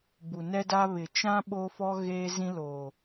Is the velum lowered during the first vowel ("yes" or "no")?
no